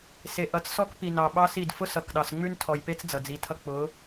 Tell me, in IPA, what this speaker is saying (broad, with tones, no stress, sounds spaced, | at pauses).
s e˨ ʔ ʌ˨˦ t͡s s ɔ˦ k p i˨ n ɑ˨ ɓ ɑ˦ s i˦˨ d f ʊ˦ s ʌ˨ k ɗ ɑ˨ s ŋ͡m ʉ˦ n tʰ ɔ˨ j p e˦ t͡s d͡z ʌ˨ d͡z i˨˦ tʰ ʌ˦ k͡p ʊ˨˦